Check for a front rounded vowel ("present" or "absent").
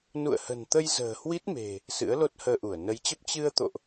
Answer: absent